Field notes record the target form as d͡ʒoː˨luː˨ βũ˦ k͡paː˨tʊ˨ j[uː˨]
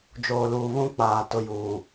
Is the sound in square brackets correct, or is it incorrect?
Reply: correct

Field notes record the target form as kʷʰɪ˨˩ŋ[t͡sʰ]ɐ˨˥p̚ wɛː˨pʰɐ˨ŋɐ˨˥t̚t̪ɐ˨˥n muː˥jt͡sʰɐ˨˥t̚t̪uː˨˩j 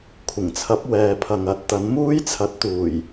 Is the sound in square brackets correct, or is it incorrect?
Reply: correct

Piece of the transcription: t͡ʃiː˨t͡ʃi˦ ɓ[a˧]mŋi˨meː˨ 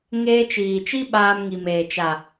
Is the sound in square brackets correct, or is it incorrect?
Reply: incorrect: aː˧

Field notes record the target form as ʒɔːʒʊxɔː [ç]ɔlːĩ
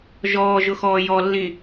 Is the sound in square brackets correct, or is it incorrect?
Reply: incorrect: j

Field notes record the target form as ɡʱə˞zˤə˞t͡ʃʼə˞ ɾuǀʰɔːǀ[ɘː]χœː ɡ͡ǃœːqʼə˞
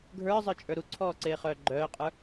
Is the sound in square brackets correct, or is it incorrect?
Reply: incorrect: eː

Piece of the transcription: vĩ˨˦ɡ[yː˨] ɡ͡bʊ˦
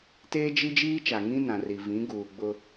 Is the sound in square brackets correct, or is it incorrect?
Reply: incorrect: uː˨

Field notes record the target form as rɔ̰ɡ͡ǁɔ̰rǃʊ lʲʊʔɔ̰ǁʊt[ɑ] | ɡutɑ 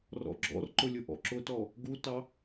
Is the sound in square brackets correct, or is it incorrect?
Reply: incorrect: ɔ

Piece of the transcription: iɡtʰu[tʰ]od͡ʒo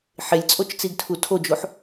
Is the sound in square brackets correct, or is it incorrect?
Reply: correct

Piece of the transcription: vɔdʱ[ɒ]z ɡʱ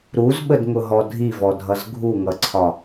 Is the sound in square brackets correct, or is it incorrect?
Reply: incorrect: ʌ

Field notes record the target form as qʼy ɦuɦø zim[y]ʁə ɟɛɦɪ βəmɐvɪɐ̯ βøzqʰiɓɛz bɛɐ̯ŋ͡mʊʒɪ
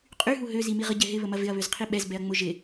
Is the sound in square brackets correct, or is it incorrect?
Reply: incorrect: i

